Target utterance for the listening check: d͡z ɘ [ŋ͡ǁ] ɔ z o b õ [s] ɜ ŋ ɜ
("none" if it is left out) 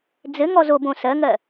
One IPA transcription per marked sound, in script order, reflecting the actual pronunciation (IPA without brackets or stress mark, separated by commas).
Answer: ŋ, s